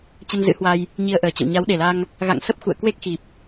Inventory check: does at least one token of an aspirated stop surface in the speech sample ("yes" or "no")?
no